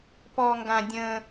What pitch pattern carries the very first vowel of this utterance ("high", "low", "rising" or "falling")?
high